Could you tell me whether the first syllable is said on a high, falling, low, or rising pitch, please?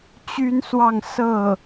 high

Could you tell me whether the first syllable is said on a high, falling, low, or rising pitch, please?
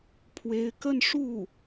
rising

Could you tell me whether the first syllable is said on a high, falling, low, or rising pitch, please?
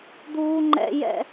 high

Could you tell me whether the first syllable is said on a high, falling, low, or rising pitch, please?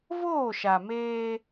falling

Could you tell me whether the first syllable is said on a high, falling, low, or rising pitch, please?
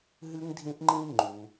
high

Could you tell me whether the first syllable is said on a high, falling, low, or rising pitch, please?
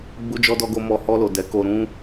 high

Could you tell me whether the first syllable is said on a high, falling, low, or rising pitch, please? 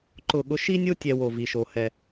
falling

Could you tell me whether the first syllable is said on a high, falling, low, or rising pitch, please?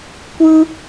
high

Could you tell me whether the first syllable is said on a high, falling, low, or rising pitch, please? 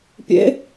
rising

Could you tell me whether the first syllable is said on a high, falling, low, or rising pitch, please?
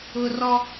high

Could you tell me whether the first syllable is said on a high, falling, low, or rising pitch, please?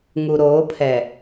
low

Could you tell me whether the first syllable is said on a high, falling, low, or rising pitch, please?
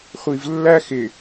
low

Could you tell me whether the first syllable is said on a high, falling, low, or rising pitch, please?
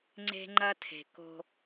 high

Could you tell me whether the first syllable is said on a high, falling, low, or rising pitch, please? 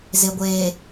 low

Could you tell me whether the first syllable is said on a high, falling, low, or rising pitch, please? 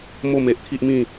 falling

